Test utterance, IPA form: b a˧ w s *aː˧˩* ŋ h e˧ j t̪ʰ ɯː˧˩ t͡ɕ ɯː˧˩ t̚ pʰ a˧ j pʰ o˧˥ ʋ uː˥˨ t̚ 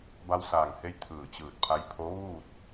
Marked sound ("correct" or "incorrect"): correct